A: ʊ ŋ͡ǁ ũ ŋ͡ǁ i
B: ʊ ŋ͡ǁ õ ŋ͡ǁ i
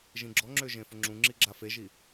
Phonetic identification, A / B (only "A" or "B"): A